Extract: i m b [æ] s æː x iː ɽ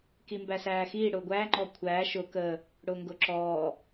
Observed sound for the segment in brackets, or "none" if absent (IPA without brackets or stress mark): æ